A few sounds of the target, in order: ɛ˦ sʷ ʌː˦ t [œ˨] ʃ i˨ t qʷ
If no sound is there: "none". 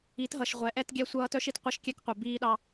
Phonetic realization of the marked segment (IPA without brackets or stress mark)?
œ˦